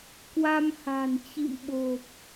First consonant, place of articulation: velar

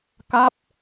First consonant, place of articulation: velar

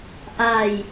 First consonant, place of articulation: glottal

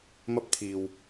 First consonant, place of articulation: labial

